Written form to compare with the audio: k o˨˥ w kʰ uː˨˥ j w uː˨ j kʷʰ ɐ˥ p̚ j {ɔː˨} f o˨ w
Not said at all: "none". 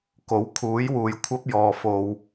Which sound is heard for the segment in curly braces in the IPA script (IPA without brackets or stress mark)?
ɔː˨